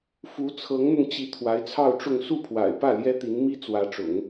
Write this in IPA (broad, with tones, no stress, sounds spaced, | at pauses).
f u˧˥ t͡sʰ ɤ˧˥ ŋ n̪ ʊ˧ ŋ t͡ɕ i˧˥ t̪ʰ w a˧˥ ɪ̯ t͡sʰ ɑ˥˧ ʊ̯ ʈ͡ʂ ʊ˥˧ ŋ s u˥˩ pʰ w a̰˨˩ ɪ̯ p ä˥˩ l j ɛ˥ t̪ i˧˥ n m i˥ t͡s w ä˧˥ ʈ͡ʂ ʊ̰˨˩˦ ŋ